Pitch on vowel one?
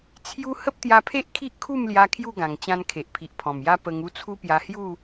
high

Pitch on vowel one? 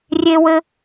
high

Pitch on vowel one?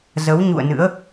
rising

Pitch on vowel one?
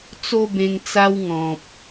high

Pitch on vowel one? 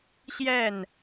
falling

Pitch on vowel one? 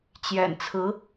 low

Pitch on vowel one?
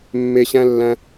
low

